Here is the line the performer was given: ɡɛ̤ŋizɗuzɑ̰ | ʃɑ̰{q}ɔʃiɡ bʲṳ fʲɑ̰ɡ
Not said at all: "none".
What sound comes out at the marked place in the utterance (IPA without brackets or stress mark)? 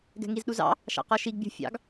q